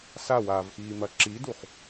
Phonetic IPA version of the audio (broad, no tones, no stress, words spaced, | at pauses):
sawaːvxiːmɐ ǁiduχ